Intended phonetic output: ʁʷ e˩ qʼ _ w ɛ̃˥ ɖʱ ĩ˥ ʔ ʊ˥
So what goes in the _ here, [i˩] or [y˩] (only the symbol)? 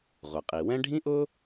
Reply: i˩